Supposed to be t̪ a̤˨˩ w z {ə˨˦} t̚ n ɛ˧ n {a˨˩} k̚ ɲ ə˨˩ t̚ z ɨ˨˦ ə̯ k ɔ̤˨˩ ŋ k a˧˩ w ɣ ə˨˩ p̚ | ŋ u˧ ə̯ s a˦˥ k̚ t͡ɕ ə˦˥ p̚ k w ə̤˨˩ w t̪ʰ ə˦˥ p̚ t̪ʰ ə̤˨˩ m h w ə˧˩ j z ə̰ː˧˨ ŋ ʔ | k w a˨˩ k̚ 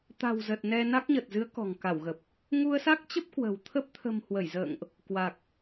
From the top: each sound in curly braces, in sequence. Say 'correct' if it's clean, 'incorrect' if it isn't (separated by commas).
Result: incorrect, incorrect